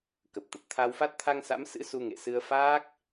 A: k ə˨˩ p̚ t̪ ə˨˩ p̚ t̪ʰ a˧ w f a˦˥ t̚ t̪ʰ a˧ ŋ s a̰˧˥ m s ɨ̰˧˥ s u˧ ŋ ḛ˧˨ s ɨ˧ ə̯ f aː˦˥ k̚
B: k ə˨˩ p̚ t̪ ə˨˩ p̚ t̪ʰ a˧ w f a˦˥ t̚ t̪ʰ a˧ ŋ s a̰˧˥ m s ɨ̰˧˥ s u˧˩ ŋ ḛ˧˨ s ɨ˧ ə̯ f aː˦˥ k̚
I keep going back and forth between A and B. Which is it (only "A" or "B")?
A